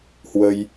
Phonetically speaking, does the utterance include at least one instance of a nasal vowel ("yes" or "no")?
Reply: no